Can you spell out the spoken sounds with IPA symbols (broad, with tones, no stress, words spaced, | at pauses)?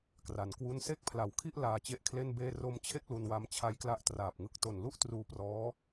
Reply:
kra˩˦nkwu˥˩n se˥˩k̚pʰla˩˦wkʰi˥˩ʔ laː˧t͡ɕe˦˥ʔkʰle˥˩nbeː˥˩ ro˧mt͡ɕʰe˥˩k̚ lu˧nwa˦˥m t͡ɕʰa˦˥jkla˦˥ʔtraː˨˩p̚ŋɯ˦˥k̚ to˨˩nlu˥˩ʔ truː˧prɔː˦˥